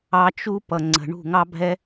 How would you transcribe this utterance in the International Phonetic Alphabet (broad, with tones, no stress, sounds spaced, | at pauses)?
ɑ˧ t͡ʃ u˦ p ʌ˨ ŋ͡ǀ ə̤˨ ɳ ṳ˦˨ ŋ ɑ˦ bʱ ɛ˦